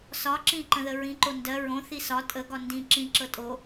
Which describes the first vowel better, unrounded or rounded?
rounded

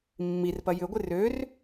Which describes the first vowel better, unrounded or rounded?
unrounded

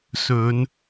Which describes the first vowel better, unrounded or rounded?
rounded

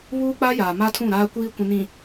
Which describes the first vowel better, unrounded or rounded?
rounded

